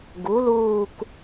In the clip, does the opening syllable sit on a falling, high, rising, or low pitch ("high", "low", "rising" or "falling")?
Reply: rising